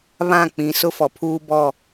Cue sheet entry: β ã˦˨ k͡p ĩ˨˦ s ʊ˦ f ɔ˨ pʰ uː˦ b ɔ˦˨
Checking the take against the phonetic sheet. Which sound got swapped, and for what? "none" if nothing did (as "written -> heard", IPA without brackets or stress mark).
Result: none